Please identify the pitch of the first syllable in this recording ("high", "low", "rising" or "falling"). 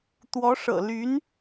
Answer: rising